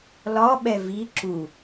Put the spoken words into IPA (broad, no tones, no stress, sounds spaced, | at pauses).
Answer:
l ɒ ɓ ɛ v i ǁ u